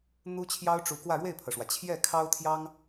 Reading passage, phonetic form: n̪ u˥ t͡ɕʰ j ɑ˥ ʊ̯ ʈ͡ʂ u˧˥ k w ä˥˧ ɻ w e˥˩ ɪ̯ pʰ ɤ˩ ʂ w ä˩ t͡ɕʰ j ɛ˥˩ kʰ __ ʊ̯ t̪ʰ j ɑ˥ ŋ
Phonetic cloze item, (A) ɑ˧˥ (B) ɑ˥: B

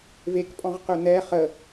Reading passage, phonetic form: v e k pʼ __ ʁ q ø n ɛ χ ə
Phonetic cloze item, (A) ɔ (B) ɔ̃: B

